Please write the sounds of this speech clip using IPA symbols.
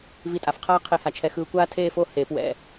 v i˧ tʼ a˩˧ f qʰ aː˥ qʰ e˧ h a˧ t͡ʃʰ ɛ˧ x ɯː˧ kʷ aː˥ tʰ eː˥˧ f o˥˧ h eː˩˧ p w ɛ̰˧˩

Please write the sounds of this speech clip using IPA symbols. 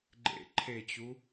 ɡ͡ǃ ḛ ǃʰ e t͡ɕ u

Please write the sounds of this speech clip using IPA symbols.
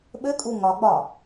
ɓ ɘ kʼ u ŋ ɒ ɡ͡b ɒ

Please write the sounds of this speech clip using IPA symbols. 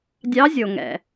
dʲ ɑ˧˥ zʲ o˩ ŋ ɛ̰˩

